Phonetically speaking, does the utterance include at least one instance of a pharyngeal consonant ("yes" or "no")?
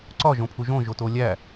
no